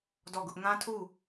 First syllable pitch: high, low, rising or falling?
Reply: falling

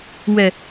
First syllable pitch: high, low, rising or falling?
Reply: low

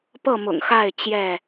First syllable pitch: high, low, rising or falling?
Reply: falling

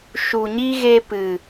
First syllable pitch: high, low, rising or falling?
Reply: low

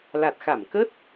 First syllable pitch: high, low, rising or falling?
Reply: low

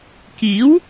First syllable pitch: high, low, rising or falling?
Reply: rising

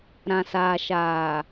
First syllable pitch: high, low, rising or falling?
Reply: low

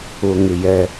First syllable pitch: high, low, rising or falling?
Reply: low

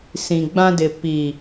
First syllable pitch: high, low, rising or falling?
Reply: low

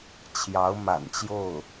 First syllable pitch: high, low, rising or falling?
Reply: rising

